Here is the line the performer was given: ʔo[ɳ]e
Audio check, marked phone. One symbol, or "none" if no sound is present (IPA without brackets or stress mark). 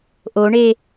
ɳ